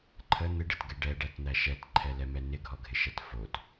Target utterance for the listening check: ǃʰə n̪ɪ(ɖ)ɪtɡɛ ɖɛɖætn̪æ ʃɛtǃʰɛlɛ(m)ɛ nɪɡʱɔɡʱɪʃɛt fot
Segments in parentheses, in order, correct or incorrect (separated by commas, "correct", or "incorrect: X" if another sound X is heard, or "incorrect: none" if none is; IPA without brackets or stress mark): correct, correct